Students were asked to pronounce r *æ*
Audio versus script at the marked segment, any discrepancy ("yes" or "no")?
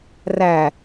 no